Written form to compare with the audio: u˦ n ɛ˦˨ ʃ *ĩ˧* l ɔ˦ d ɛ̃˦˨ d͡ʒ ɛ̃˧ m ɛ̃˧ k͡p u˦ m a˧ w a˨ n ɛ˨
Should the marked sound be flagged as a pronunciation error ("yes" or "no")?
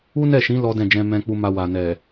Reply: yes